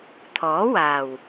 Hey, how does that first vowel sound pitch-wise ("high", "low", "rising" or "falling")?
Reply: rising